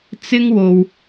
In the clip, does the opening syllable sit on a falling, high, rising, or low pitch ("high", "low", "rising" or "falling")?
high